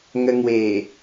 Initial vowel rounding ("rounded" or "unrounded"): unrounded